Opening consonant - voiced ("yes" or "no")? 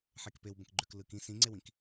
no